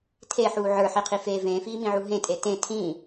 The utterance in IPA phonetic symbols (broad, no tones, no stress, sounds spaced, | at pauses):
tʰ e ħ uː ʕ ə˞ ħ i qʰ i f eː v ẽː f iː m ĩ ʕ u ɦ ẽ tʼ e t ẽ tʰ ĩ